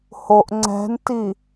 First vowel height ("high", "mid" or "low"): mid